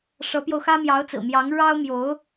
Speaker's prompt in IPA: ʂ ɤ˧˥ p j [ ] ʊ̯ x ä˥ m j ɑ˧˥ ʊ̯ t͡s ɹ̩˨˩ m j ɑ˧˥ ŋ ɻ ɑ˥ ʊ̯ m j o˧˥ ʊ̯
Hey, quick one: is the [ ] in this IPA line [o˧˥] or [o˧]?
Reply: o˧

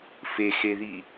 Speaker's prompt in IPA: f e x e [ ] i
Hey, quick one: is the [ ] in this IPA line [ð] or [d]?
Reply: ð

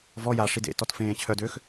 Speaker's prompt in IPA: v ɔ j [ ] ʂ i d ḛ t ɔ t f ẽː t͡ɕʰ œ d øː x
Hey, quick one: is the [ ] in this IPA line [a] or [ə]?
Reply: a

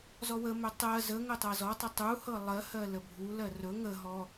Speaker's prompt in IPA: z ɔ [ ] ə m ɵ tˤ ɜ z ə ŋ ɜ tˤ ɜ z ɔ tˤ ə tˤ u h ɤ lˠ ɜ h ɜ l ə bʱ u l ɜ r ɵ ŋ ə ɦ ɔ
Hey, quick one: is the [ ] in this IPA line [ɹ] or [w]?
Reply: w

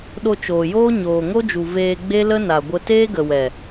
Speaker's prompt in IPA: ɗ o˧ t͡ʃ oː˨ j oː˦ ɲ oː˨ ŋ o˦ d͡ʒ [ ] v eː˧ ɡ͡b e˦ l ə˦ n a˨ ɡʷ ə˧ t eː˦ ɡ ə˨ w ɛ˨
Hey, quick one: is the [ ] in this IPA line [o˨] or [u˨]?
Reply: u˨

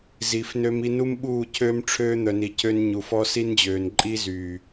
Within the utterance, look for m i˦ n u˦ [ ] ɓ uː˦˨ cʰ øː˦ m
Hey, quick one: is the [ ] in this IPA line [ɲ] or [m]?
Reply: m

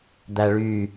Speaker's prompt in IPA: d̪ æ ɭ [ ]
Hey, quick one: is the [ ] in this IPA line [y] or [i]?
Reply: y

